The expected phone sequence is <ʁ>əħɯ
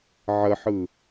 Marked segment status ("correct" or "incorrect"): incorrect